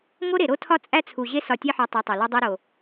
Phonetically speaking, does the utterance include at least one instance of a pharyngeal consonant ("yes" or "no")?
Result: yes